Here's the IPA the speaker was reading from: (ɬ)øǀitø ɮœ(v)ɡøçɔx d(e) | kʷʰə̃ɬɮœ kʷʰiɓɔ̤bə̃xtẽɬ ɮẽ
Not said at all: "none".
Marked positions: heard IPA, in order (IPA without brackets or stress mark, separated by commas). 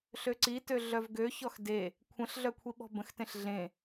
ɬ, v, e